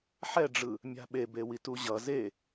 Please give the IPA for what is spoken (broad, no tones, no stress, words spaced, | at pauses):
ħɛɖ͡ʐɯ | mʲa̤ɓebewi tuʑʌ ze